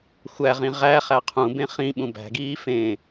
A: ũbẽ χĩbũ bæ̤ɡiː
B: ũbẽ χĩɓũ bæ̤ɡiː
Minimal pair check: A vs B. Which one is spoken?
B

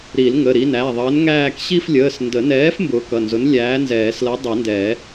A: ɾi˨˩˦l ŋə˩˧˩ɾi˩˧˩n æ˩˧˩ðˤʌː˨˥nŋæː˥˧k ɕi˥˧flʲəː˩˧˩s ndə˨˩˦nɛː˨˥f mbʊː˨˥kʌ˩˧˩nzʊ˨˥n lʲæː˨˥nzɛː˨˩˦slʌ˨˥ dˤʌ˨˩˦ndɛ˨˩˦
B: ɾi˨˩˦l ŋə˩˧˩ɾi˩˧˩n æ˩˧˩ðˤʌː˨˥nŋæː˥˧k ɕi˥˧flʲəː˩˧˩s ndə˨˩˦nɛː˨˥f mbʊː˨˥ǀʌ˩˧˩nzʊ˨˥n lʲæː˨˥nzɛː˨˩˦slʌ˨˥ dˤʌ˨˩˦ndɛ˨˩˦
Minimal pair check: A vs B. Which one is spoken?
A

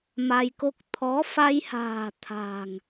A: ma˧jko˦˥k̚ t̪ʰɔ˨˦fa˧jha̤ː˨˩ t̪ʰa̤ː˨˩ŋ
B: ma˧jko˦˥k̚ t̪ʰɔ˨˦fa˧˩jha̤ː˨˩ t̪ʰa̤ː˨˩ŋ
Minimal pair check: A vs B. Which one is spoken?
A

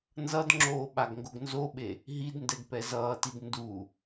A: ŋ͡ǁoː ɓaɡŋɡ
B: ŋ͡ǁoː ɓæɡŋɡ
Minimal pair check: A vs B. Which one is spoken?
A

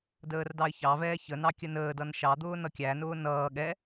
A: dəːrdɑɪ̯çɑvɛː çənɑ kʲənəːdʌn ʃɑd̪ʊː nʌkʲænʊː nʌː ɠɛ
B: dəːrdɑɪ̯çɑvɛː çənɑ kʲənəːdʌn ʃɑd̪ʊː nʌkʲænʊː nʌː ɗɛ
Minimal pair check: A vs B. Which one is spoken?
A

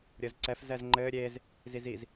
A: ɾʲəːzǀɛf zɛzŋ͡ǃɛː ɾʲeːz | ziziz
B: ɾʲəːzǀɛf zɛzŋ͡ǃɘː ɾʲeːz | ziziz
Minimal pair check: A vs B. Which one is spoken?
B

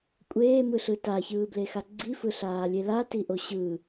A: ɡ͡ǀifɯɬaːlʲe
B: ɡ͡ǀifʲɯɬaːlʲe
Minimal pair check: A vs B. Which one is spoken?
A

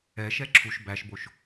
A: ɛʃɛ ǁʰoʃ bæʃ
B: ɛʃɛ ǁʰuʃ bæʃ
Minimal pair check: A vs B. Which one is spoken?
B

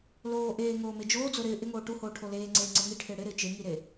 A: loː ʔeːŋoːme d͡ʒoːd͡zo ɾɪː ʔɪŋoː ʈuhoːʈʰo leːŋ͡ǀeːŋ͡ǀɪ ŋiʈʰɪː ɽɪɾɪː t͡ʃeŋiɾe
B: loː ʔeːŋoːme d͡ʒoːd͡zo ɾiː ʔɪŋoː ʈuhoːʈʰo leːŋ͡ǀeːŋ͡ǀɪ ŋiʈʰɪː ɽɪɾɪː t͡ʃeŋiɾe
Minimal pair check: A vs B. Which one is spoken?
A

